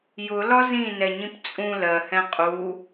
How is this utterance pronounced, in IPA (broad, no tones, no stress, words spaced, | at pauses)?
jʊlɒ zĩnɛɲĩp t͡sʼũ lɜhɛ̃ qʼu